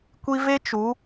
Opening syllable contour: high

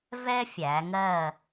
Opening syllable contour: high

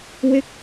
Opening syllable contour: falling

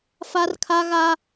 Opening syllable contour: high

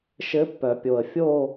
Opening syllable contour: rising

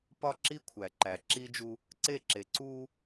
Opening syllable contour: high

